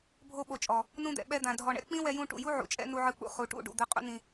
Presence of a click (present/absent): absent